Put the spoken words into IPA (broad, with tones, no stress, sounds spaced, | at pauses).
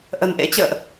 ʔ ə̤˨˩ n ʔ ḛ˧˥ t͡ɕ ə̰ː˧˨ ʔ